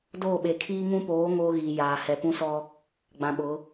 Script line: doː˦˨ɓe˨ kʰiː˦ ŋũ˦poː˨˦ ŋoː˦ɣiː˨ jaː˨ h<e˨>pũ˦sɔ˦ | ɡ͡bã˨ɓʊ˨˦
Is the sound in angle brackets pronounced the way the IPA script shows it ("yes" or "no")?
no